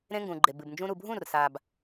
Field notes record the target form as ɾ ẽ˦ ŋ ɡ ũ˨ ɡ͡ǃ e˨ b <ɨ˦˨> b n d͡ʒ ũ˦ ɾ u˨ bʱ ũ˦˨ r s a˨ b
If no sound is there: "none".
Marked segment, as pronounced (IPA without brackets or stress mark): ɨ˨